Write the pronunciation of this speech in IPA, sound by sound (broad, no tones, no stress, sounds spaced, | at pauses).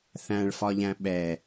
θ æ̃ ɭ f ɒ ʎ æ̃ ɓ ɛ